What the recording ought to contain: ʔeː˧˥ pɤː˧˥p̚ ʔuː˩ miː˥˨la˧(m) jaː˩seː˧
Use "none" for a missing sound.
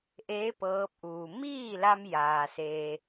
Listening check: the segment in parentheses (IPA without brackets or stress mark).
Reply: m